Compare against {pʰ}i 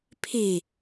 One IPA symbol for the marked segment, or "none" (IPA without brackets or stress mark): pʰ